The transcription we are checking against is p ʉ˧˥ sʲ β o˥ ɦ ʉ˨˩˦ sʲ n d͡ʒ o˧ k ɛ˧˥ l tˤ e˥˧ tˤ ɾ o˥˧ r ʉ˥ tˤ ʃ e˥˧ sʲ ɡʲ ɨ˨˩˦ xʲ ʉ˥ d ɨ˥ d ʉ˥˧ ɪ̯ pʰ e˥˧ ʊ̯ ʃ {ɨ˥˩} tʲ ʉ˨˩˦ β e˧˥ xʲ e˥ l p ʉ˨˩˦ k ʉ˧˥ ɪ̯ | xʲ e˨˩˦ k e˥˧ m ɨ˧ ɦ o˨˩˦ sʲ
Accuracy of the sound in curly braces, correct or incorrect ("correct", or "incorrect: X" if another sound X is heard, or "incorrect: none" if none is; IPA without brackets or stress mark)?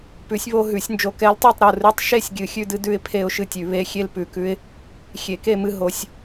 correct